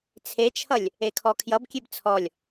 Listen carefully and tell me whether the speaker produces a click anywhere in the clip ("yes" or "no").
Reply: no